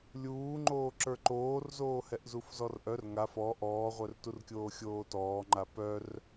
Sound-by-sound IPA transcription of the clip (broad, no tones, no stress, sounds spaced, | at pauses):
lʲ uː ŋ͡ǃ oː ǁ ə˞ ǃ oː r z oː h ɛ ʔ z u f z ɔ r ʔ œ r ŋ a f ɔ ʔ ɔː ʁʷ œ r t u r kʲ oː xʲ oː t ɔː ŋ͡ǃ a p œ r